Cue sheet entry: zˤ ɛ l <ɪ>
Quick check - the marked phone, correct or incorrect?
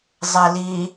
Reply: incorrect